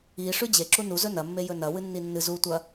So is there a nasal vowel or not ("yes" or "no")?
no